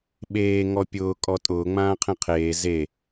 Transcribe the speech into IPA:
ɓ eː ŋ ɔ pʲ ʊː kʼ ɔ tʼ ʊː ŋ͡m ãː qʰ ẽ qʰ eː z e

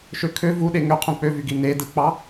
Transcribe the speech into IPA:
ʃ ø kʰ ø v u ɗ e ŋ ø qʰ ũ k͡p ø v y ɡ i n e d ɯ k͡p ɑ

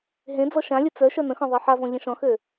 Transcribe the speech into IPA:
ɦ ẽ d͡z ɔ ʃ ã lʲ ɘ t͡s œ ʃ œ n ə̃ x ɔ̃ ðˤ e ħ a v ɔ̃ ʎ ə̃ ʃ ɔ̃ x ø

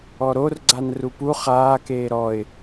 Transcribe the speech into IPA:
ɔ ɾ o r ɡ͡ǀ a n r u p u χ aː k eː ɾ ɔ ɪ̯

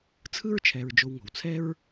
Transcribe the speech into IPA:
t͡sʰ ɯ˥ ɹ t͡ʃʰ ɛ˨ ɹ d͡ʒ o˨ w ŋ o̤˩ w t͡sʰ ɛ˦ ɹ

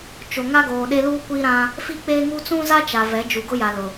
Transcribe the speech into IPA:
t͡ʃ o˨ ŋ a˦ ɡ oː˨ ɗ e˦ l uː˦ kʷ i˦ ɾ ã˦ | f i˦ k͡p e˦ ŋ u˦ t͡s ũ˦ z a˦ t͡ʃ a˨ v ɛ˨˦ d͡ʒ u˨ ɡ ʊ˦ j a˨ l ʊ˨

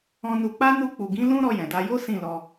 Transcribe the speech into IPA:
ɔ̃˧ n u˧ k͡p a˦ n u˧ k͡p u˨ ɡ ĩ˨˦ l ũ˦ ɾ ɔ˧ j ɛ̃˨ d a˧ j o˦ s ĩ˦˨ l ɔ˧

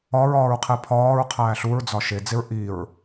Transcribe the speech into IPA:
ɒ ɹ ɒː ɹ qʰ e pʰ ɒː ɹ qʰ æː ɬ u ɹ d͡z ɒ ʃ e d͡z e ɹ ʔ i ɹ

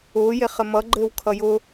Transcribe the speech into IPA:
ʊː j e χ ɘ m ʌ ɡ͡ǃ ɘː w kʰ ʌ j ʊ

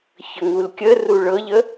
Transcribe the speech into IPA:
ç ə ŋ u l kʲ ə r u ɭ ɤ ʎ ə

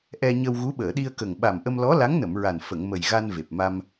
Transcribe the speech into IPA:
ʔ ɛ˧ ɲ ə˧ w ɣ u˧˥ ɓ əː˨˩˨ ɗ i˧ ə̯ k ə˨˩ ŋ ɓ a˨˩ m ʔ ə˧ m l ɔ˧˥ l a˧˥ ŋ n ə˨˩˨ m ɹ a˨˩ n f ə˨˩˨ ŋ m ə˨˩ j ɣ a˧ n v e˨˩ p̚ m a˧ m

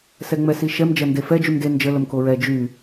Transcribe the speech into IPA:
s ɛ ŋ͡m ɛ s i ʃ ɛ m d͡ʒ ɐ n d e f ɛ d͡ʒ y m d e n d͡ʒ ə l ə m k o ɹ ɛ d͡ʒ y

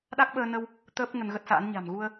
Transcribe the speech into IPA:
ɗ a˦˥ k̚ ɓ əː˧ n ə˧ w | t̪ əː˦˥ p̚ ŋ ə˧ n ɣ ə˦˥ t̚ s a̰ː˧˥ n ɲ a̤˨˩ m ɣ u˧ ə̯

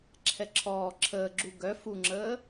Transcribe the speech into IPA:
ǁʰ ɛ ǁʰ ɔː ǁʰ əː ɡ͡ǁ u ɡ œ f u ŋ͡ǁ əː

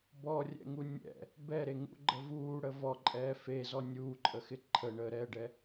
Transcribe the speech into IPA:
b ɔ rʲ ɛ̰ ŋ u nʲ ɛ̰ | b ɛ ɾ e ŋ ṵ ɡ͡ǃ ə v uː ɽ ə v ɔ ǃʼ ɛː f e z ɔ nʲ uː ǃʼ ə x ɪ ǃʰ ə ɳ əː ɾ ɛ ɖ ɛ

